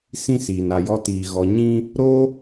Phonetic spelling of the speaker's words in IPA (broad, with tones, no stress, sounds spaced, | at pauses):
s ĩ˦ s iː˨ n a˨ j ɔ˧ t iː˨ ɣ ɔ˨ ɲ ĩ˧ | ɾ o˦